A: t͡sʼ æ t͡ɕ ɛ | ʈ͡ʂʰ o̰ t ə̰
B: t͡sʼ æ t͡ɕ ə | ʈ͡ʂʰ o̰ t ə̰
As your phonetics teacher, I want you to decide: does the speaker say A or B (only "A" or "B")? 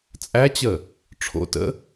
B